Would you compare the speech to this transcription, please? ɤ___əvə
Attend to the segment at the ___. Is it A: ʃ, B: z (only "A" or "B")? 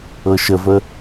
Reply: A